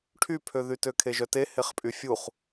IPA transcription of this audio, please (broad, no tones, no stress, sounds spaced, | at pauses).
ʈʰ y pʰ ø ð y t ø kʰ e ʒ œ t e h e χ pʼ y fʲ u χ